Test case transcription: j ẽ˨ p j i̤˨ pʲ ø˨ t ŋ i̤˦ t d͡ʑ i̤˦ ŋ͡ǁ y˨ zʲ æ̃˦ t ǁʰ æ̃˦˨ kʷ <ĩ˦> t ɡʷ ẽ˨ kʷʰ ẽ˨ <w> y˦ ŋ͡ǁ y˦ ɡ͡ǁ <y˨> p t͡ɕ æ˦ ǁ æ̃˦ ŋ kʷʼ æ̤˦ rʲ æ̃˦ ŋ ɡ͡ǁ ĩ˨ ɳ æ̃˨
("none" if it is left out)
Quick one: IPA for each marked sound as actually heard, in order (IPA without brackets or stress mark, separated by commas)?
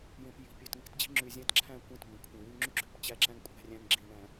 ĩ˦˨, w, ø˨